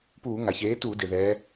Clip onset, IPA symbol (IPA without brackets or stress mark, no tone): p